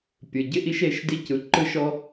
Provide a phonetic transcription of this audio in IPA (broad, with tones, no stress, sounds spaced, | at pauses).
pʲ ɯ˨ ɟ ɪ˦ ʔ i˦ ʃ e˨˦ ʃ d i˦ c ɯ˨ ǃ ɯ˦ ʃ ɔ˦